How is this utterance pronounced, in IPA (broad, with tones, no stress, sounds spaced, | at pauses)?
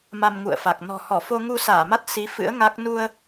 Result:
m a˧ m ŋ ṵ˧˨ ə̯ f a˨˩ k̚ n ɔ̤˨˩ h ɔ˧˩ f o˧ ŋ u˧ s aː˧˩ m a˦˥ t̚ s i˨˦ f ɨ̰˧˥ ə̯ ŋ a˦˥ k̚ n u˧ ə̯